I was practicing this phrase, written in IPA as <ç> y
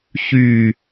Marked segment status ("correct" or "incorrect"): correct